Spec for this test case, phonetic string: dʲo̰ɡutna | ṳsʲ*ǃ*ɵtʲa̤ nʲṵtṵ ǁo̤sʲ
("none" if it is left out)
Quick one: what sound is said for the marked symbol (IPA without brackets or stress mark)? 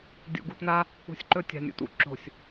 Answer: ǃ